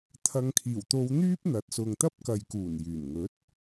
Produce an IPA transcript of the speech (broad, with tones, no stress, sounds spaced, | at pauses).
t̪ʰ ɐ˨ ŋ kʰ iː˨˩ w t̪ o˨˧ w n̪ yː˥ p̚ n̪ ɐ˨˥ t̚ s ʊ˨ ŋ t̪ ɐ˥ p̚ k ɐ˨ j k uː˨˩ n j yː˨˩ n ŋ ɵ˨˥ t̚